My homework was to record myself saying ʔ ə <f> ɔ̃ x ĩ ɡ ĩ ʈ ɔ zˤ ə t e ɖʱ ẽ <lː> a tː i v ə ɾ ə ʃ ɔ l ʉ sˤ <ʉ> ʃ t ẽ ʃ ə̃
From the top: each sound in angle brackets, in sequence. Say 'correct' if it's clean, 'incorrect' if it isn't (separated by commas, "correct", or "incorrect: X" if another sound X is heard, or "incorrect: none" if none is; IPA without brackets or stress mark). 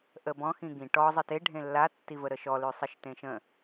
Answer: incorrect: b, correct, incorrect: ə